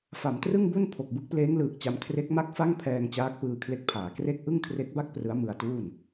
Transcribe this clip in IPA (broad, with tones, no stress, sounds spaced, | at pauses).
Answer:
f a˩˦ m t r ɯ˥˩ ŋ b u˥˩ n pʰ o˨˩ k̚ b ɯ˥˩ k̚ p l eː˦˥ ŋ l ɯː˨˩ k̚ t͡ɕ a˧ m kʰ r e˦˥ k̚ m a˥˩ k̚ f a˥˩ ŋ pʰ ɛː˧ ŋ t͡ɕ aː˦˥ k̚ p ɯː˧ kʰ l e˦˥ k̚ pʰ aː˩˦ k r e˥˩ k̚ ʔ ɯ˥˩ ŋ kʰ r e˦˥ k̚ b a˥˩ k̚ p r ɯ˦˥ a̯ m ɯ˧ a̯ t uː˥˩ n